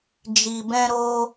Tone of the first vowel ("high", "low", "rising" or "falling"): low